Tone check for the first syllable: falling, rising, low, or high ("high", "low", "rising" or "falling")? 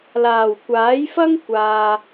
low